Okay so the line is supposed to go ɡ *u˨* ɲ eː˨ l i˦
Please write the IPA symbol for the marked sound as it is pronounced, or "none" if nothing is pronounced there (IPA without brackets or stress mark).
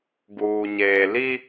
uː˨